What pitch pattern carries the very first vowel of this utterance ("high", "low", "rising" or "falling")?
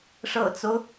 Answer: low